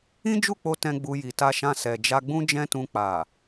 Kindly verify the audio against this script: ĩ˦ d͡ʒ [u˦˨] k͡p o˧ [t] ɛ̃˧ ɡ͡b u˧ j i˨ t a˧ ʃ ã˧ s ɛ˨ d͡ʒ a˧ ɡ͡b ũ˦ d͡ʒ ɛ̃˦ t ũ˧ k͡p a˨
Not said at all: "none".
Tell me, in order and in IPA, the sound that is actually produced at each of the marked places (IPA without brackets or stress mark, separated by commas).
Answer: u˦˨, t